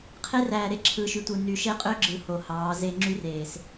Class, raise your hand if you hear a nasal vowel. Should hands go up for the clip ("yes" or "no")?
no